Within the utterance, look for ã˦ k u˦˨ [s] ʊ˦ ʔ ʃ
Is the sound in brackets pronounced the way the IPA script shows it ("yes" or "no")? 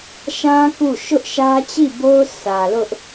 no